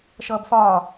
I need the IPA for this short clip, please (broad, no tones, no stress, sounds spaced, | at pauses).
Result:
ʃ ʌː b f ɒː